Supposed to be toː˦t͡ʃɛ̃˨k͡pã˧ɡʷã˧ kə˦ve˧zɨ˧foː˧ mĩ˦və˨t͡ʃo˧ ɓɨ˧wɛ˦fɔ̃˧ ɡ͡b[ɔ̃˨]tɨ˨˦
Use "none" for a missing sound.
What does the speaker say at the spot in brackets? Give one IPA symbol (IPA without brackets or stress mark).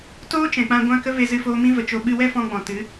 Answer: ɔ̃˨